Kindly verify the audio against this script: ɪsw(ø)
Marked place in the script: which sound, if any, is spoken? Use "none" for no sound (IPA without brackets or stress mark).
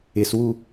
u